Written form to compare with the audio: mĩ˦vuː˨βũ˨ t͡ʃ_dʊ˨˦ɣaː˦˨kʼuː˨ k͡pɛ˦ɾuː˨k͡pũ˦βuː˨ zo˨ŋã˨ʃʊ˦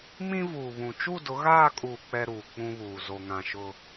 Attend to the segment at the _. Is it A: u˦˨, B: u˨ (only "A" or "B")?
A